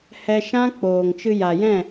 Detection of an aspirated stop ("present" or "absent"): absent